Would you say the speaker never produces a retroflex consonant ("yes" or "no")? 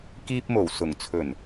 yes